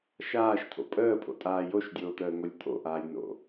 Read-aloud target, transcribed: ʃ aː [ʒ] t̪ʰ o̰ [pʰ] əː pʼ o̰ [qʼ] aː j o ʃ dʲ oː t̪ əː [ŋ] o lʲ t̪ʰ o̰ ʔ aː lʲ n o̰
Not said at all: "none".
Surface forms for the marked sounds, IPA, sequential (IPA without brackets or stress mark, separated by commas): ʃ, pʼ, tʼ, ŋ